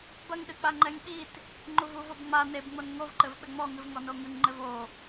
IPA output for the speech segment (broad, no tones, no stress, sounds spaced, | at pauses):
b ɐ ŋ ɗ ɨ k͡p a ŋ͡ǃ ɛ ŋ ɓ i t | ŋ͡ǃ u v u v o b ŋ͡m a n e b ŋ͡m o n ŋ o v ǃ ɘ v ɓ ɘ ŋ͡m ɔ ŋ ɨ v ŋ ɔ n o ŋ ɨ ŋ ŋ͡ǃ ɘ v o